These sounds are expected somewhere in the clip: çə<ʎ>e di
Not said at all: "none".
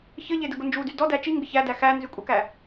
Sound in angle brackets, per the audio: ʎ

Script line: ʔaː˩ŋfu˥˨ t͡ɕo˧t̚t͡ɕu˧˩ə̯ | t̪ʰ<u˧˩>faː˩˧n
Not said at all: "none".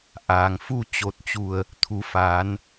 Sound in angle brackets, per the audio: u˩˧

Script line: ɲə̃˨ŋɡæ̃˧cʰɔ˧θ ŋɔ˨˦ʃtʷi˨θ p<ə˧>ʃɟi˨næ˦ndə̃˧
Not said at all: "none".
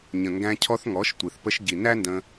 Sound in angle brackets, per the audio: ə˧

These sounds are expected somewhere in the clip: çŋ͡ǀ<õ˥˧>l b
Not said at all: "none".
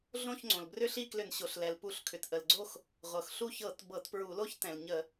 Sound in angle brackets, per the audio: õ˩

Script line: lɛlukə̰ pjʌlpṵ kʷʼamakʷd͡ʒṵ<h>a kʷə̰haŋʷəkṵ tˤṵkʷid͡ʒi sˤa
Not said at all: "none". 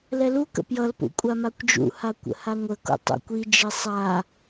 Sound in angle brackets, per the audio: h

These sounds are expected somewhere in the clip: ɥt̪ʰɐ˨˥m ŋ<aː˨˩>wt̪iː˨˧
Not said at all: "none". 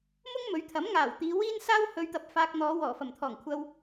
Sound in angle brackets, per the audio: aː˨˩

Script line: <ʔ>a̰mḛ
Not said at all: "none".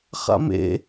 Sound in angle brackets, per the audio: χ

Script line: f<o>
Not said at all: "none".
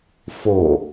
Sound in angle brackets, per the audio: o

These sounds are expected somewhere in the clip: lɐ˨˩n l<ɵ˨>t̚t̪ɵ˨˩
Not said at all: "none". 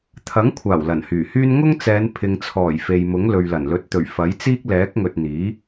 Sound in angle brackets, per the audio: ɵ˨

